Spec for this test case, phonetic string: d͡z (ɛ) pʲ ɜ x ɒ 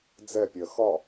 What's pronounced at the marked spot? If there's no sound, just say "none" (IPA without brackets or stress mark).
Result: ɛ